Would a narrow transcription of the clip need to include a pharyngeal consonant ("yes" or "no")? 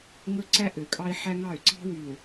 yes